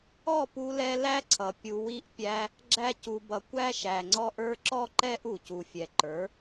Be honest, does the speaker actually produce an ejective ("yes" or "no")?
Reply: no